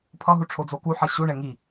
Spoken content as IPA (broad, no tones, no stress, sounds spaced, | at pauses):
pʰ ʌ ɦ u ʈ͡ʂʰ o d͡z o k u ħ ʌ ɕ u ɳ ɛ ŋ i